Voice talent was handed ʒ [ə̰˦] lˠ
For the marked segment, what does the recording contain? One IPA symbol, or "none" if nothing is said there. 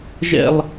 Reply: ɛ̰˦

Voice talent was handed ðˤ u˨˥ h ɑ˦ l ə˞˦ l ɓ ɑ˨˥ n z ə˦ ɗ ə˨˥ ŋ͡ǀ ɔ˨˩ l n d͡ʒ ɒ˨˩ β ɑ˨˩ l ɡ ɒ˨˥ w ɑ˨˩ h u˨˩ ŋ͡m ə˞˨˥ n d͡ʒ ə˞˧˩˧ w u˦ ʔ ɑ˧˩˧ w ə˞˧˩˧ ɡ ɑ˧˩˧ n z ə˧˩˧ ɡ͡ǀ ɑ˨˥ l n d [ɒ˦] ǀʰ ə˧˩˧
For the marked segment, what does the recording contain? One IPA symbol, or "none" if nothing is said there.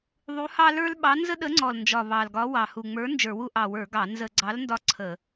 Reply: ɒ˦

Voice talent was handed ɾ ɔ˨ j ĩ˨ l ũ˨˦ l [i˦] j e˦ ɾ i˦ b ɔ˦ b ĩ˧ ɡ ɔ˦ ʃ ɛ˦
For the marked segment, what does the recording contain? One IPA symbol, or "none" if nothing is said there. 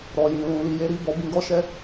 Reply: i˧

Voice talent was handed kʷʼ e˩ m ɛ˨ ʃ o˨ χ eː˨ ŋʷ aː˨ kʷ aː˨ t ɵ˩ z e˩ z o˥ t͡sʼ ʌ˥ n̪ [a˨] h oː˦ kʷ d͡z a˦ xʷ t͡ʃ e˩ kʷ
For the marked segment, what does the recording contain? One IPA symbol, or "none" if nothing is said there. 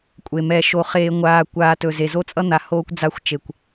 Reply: a˨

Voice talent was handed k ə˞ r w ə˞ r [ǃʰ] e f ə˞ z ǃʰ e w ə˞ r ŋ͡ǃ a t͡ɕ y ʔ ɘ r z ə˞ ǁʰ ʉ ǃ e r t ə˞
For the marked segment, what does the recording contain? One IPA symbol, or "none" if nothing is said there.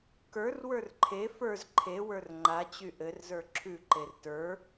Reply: ǃʰ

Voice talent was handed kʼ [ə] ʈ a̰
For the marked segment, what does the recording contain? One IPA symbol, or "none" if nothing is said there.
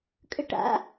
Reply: ə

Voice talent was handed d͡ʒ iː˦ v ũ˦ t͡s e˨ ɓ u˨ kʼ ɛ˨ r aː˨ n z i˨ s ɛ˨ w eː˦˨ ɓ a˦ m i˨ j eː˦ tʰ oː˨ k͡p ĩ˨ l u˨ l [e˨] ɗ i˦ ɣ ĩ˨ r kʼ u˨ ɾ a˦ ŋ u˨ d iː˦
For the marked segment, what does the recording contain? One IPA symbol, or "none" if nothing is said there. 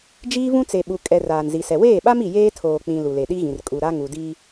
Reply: e˨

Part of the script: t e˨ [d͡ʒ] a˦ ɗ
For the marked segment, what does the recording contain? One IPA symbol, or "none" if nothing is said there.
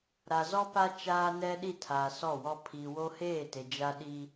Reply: d͡ʒ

